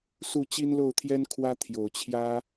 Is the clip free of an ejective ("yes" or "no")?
yes